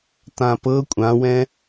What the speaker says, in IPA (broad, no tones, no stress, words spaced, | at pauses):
tãpɤ kʷʼãwɛ̃